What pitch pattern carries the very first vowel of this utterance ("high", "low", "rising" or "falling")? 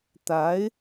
rising